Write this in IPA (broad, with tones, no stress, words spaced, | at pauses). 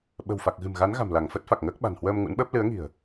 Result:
ɓə̤˨˩wfa˨˩k̚ɣɨ̤˨˩m ɣa˨˦nɣa̤˨˩mla˧˩ŋ fə˦˥t̚fa˨˩k̚ŋəː˦˥k̚ɓa̤˨˩n hwəː˧m ŋṵ˧˥nɓəː˦˥p̚ lɨ˨˦ə̯ŋi̤˨˩ə̯